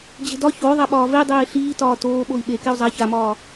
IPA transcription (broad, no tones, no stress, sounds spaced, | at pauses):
d͡ʑ e̤ d ɒ ç o ðˤ a ɓ ɒː v e dˤ eː ɬ iː t ɒː t oː ɓ o i̯ ɓ e k e u̯ zˤ a ç a m ɒː